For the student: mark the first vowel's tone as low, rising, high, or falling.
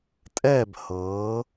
falling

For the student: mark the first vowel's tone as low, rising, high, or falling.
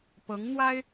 rising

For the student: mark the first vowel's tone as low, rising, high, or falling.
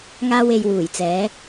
high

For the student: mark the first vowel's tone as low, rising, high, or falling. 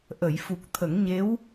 low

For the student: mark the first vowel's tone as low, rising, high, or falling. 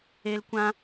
high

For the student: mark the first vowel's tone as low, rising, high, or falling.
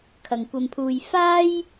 low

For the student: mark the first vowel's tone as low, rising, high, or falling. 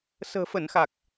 low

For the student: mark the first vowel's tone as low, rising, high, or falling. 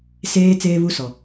high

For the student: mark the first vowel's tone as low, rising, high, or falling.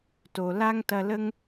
low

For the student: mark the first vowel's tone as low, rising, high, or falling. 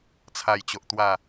low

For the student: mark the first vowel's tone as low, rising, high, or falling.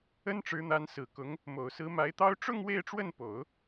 high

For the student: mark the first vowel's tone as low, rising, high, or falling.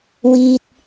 low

